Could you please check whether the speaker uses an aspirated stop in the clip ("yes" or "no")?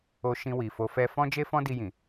no